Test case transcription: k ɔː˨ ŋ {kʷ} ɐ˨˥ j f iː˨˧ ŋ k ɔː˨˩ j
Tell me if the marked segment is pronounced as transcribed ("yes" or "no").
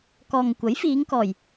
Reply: yes